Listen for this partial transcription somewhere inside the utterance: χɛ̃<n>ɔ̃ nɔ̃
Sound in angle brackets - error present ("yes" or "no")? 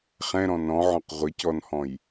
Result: yes